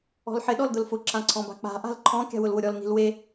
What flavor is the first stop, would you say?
implosive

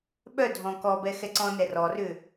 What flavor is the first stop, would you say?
implosive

